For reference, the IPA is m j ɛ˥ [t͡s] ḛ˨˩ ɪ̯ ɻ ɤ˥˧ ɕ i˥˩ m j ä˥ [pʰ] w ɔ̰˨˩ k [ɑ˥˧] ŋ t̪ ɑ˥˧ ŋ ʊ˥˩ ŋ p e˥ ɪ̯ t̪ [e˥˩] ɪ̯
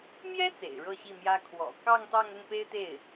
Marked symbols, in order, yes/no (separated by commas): yes, no, yes, yes